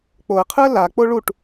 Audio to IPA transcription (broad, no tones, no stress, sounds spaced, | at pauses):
k͡p o ə̯ qʰ ɯ ə̯ l a k͡p o ɭ u ʈ